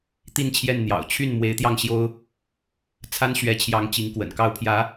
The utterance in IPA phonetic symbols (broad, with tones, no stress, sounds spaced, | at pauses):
t̪ i˥˧ n t͡ɕʰ j ɛ˥˩ n n̪ j ɑ̰˨˩ ʊ̯ t͡ɕʰ y˥˩ n m w e˧˥ ɪ̯ t̪ j ɑ˥˩ ŋ ɕ j o˥ ʊ̯ | t͡sʰ a˥ n ɕ ɥ ɛ˧˥ t͡ɕʰ j ɑ˧˥ ŋ t͡ɕ i˧˥ ŋ k w ə̰˨˩ n k ɑ˥˩ ʊ̯ pʰ j ä˧˥